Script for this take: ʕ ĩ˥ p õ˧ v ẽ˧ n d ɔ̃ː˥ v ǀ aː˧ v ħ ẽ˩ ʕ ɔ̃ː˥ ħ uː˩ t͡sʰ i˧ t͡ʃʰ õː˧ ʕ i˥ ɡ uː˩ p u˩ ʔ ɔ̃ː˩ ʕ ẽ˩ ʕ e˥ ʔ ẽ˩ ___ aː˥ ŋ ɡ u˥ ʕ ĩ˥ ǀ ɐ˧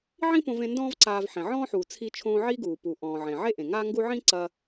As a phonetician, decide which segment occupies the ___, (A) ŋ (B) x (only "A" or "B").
A